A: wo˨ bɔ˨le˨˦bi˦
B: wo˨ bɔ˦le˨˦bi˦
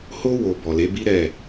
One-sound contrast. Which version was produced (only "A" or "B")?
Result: A